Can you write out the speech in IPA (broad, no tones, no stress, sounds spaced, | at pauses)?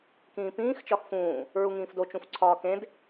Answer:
k ĩː p ĩː x t͡ʃ ɒ x f ũː | ɹ u ŋ ĩː f d o t͡ʃ ũ f ǀʰ ɒː k ẽ d